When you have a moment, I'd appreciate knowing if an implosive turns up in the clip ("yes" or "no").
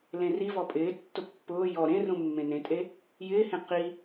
no